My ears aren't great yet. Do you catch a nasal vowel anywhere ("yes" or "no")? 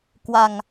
no